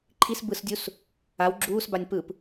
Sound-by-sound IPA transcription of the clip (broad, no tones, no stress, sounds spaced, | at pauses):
ǃʰ i s b ɯ s dʲ u s | a w ɡ͡ǁ uː s b a nʲ p ɯ p